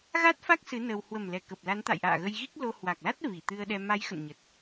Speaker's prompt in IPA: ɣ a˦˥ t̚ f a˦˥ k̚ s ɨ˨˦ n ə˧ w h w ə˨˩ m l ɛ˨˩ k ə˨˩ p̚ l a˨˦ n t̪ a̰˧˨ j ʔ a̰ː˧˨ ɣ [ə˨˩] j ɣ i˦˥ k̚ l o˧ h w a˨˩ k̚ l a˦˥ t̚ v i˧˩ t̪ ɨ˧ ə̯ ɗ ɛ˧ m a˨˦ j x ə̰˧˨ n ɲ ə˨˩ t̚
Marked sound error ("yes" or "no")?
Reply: yes